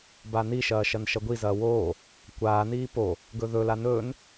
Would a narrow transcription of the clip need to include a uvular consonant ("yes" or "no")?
no